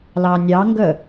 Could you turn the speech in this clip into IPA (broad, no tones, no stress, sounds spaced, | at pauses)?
l ɑ nʲ ɑ ŋ ɡ ə